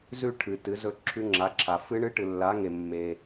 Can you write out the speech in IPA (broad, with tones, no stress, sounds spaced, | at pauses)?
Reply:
z ʉ˥˧ ʈʰ ɨ˨ t ɨ˨˥ z ɵ˦˥ ǁʰ ʉ˦˥ ŋ͡ǁ a˨˥ ǁʰ a˨ f ɨ˦˥ ɳ ɨ˦˥ ʈ ɨ˨ lː a˨˥ ŋ e˨ mː e˨